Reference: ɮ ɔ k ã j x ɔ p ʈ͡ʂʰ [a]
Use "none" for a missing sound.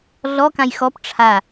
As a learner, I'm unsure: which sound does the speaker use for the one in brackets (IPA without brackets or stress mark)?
a